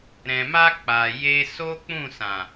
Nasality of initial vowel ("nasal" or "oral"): nasal